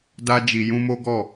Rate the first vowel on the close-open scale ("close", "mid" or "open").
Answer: open